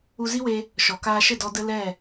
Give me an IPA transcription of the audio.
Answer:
u˧ z i˦ w e˧ | ʃ ɔ˨ k aː˧ ʃ ə˦˨ d ɔ˧ d ə˦ l ɛ˦˨

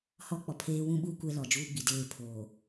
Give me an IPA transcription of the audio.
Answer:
h ɔ˦ k͡p ɔ˨ pʰ eː˦ w ũ˦ ɓ uː˦ kʷ ɛ˦ l ɔ˨ d͡ʒ uː˦ ɡ͡b i˨ d eː˦˨ pʰ oː˨

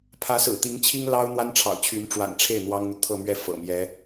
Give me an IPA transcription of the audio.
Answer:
pʰ ä˧˥ s ɹ̩˨˩ t̪ i˧˥ ŋ t͡ɕʰ i˥ ŋ l ɑ˥ ʊ̯ n̪ w a˥ n ʈ͡ʂʰ ɑ̰˨˩ ʊ̯ t͡ɕʰ y˧˥ n ʈ͡ʂ w a̰˨˩ n ʈ͡ʂʰ e˥˩ ɪ̯ n̪ w ɑ˥ ŋ n̪ u˨ t̪ʰ ɤ˥˧ m ɥ ɛ˥˩ f ɤ̰˨˩ m j ɛ˧˥

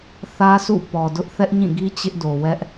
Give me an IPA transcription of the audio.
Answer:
θ ä˦ sʰ ṵ˦˨ p ɔ˨ d ʊ˦ ʔ θ ɛ˦ ʔ ɲ ĩ˦˨ ɡ i˦ t͡ɕ ɪ˦ ʔ d o˨ w ɛ˦ ʔ

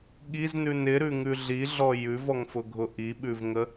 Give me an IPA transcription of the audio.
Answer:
ɠ i z n ʉ n ɪ ɾ ʉ ŋ ʉ ɮ i ɮ ɔ j ʉ v ɔ ŋ f ʊ ɡʱ ʊ ʔ i ɓ ʉ v ŋ ə

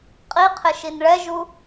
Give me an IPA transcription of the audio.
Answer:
qʼ i qʰ ɪ ʃ i n ɭ ɛ ʒ u

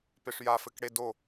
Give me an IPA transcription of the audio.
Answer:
p e ʂ j a f ɘ k ɽ e d o

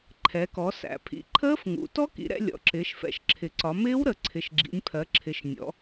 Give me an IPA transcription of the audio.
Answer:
ǃʰ ɛ˩˧ k ɔ˩˧ s æ̰˩˧ pʰ ḭ˩˧ ǃʰ əː˦˥ f ŋ ṵ˩˧ t ɔ˦˥ k ḭ˩˧ ɾ ɛ̰˩˧ lʲ ɔ̰˩˧ ǁ ɪː˩˧ ʃ f ɛ̰˩˧ ʃ ǁʰ ɪ˩˧ ǀ ɒ˩˧ m ɪː˦˥ w ɾ ə˩˧ ǀʰ ɪ˩˧ ʃ ɡ͡ǁ ḭ˩˧ nʲ pʰ ɜ˩˧ ǁʰ ɪ˩˧ ʃ nʲ ɔ̰˩˧

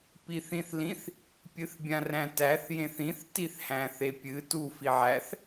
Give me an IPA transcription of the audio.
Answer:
p i θ ĩ θ l ĩ θ | pʲ ɨ θ bʲ ã r æ̃ t æ θ j ẽ θ ĩ θ t i θ h æ̃ θ e pʲ ɨ t u f i ʕ æ θ

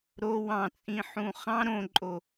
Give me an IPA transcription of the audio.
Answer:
ɾ o w ɑ̃ t͡sʼ ĩ ħ ũ χ ɑ̃ ɾ õ ǃʼ o

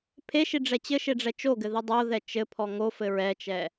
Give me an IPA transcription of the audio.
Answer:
pʰ e ʃ i ɖ͡ʐ ɛ t͡ɕ ɘ ʃ e ɖ͡ʐ ɛ t͡ʃ o ɡ ɘ ð i dˤ o ð ɛ t͡ʃ ɘ pʰ ɔ ŋ o f ɘ ɹ ɛ t͡ʃ ɛ

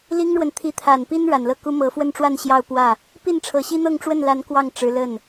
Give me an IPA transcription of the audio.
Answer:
l i˥ ŋ ɻ w ə˨ n t̪ʰ i˧˥ t̪ʰ a˨˩ n p i˥ n ɻ a˨˩ n l ɤ˥˩ k u˥ m ɤ˧˥ f w ə˥˧ n ʈ͡ʂ w a˥˧ n ɕ j ɑ˥˧ ʊ̯ p w ä˥˩ | p i˥˩ n ʈ͡ʂʰ ɤ˨˩ ɕ i˥ n̪ ɤ˥˧ ŋ ʈ͡ʂ w ə˥˩ n l a˧˥ n k w ɑ˥˩ ŋ ʈ͡ʂ ɻ̩˧˥ l ə˥˩ n

